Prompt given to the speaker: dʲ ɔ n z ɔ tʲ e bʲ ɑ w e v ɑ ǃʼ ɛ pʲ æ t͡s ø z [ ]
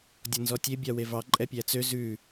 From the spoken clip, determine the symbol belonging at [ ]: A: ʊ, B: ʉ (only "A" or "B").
B